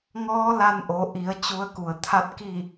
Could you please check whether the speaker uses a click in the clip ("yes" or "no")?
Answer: no